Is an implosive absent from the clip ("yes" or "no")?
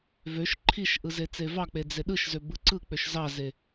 no